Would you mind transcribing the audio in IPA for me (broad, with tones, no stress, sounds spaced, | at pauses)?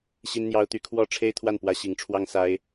ɕ i˥ n n̪ j ɑ˥ ʊ̯ t̪ y˥ kʰ w ɔ˥ ʈ͡ʂʰ e˥ ɪ̯ t̪ʰ w a˥˩ n p w ä˥ ɕ i˧˥ ŋ ʈ͡ʂʰ w ɑ˥ ŋ s a˥ ɪ̯